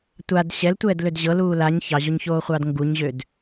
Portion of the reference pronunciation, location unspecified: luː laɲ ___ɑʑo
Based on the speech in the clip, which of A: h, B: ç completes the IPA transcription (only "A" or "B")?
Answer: B